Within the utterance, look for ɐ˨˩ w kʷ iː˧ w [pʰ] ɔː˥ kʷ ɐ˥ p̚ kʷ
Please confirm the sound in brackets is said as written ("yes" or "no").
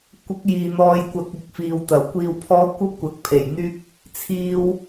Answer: yes